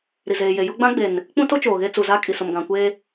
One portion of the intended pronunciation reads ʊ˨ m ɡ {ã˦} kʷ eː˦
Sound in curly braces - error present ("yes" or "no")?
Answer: yes